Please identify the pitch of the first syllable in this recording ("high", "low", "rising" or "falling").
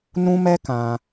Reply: high